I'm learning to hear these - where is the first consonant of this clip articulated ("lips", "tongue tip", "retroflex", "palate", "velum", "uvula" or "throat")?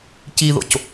palate